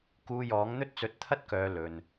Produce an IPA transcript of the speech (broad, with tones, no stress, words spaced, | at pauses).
kuː˧jɔː˨˥ŋ n̪ɵ˥t̚t͡sɵ˧t̚t̪ʰɐ˥t̚kœː˨˧ lɵ˨n